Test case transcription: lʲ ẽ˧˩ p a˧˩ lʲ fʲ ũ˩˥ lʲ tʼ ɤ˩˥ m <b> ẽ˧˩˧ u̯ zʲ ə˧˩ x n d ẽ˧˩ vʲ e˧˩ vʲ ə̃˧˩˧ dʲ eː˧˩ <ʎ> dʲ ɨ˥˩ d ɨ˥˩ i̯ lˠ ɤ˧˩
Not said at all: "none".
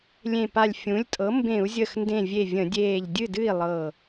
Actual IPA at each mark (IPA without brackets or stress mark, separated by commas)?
b, ʎ